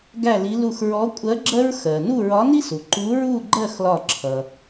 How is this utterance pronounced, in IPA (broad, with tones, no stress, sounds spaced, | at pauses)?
ɡ æ˥˧ l i˧˥ l u˧˩ x ɹ ɔ˧˥ kʷʼ ɜ˧˥ ɡ͡ǁ ɜ˥ ɹ x ɜ˩ n u˥˧ ɹ ɒ˧˥ n i˥ s u˩ ǃ u˧˥ ɹ u˥˧ ɡ͡ǃ ɜ˥˧ x l ɒ˧˩ ǁʰ ʌ˩